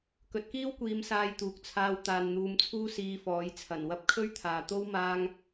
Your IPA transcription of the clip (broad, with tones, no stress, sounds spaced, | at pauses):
k ɵ˨ t̚ k iː˥ w kʷ iː˨˧ m s aː˧ j t̪ uː˨ k̚ t͡sʰ aː˧ w t̪ aː˨ n n̪ uː˨˧ m t͡sʰ uː˥ s iː˧ f ɔː˨˥ j t͡sʰ ɐ˨˩ n w ɐ˧ p̚ kʰ ɵ˥ ɥ t̪ʰ aː˨ t̪ o˥ w m aː˧ ŋ